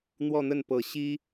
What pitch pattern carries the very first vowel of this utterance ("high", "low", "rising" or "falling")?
falling